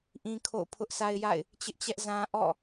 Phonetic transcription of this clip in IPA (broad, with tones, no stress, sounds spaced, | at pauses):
ʔ ĩ˦ kʰ o̰˦˨ ʊ̯ pʰ ʊ˦ ʔ s a˦ ɪ̯ j a̰˦˨ ɪ̯ | t͡ɕ ɪ˦ ʔ t͡ɕ ɛ˦ ʔ z ã˦ ʔ ɔ̰˦˨